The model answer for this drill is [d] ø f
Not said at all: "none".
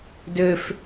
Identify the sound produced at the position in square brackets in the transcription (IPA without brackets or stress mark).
d